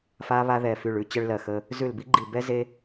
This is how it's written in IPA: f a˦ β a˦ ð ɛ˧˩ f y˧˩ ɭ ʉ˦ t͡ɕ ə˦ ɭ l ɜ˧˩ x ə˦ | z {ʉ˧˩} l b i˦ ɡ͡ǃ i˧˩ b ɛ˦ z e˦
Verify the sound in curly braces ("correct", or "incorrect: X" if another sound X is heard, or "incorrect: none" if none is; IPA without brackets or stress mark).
correct